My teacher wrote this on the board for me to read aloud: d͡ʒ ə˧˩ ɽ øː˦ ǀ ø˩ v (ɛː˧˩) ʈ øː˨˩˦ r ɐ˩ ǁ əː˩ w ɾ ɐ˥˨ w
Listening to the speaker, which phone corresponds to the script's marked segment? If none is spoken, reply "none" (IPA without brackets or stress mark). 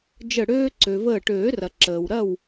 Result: əː˧˩